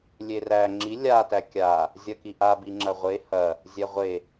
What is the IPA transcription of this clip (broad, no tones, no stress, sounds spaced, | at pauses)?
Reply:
lʲ e r æ ŋ͡ǁ i lʲ a t æ kʲ a | zʲ ɐ k i ʔ a b i ŋ͡ǁ ɐ ʁʷ e h ɐ | zʲ ɛ ʁʷ e